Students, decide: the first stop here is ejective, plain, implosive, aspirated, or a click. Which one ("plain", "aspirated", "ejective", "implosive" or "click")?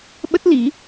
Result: implosive